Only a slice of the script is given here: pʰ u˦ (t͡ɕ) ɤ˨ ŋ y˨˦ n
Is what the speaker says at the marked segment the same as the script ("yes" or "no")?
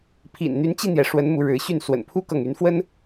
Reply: no